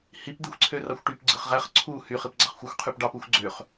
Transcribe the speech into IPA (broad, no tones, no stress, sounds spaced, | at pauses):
h i p d̪ i xʷ ǀʰ ø r ɑ xʷ ʈ y p ɡ͡ǀ ɯ χ ʁ æ χ ǀʰ u h y χ i p ɡ͡ǀ ɑ χ xʷ ɯ xʷ qʰ y p ɖ ɑ p u xʷ ɡ͡ǀ ø χ